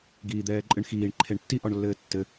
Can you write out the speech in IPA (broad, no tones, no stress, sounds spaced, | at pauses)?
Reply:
ɡ iː d̪ ɛː ǃʼ ɨ ɳ x iː ɳ ǃʰ e ɳ tː i ʔ ɔ ɳ lː ɘː tː ɘ